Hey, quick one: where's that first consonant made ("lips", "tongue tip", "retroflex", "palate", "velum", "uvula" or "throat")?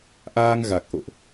throat